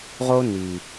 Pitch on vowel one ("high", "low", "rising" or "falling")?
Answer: high